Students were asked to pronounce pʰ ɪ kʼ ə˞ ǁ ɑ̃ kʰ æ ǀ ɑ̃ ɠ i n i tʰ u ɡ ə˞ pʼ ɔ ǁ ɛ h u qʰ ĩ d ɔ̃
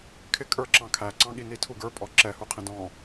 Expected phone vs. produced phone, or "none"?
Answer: pʰ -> kʰ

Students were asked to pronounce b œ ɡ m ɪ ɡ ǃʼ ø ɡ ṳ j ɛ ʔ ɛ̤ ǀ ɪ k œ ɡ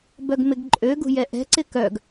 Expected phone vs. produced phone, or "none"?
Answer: none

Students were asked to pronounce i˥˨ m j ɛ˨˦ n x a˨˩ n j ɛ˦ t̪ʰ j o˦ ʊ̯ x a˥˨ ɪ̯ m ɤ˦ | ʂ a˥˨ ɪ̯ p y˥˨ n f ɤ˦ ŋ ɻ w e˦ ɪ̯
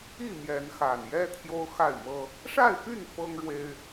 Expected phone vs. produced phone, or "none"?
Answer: none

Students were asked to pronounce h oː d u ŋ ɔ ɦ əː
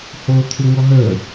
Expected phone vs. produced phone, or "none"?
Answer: d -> t̪ʰ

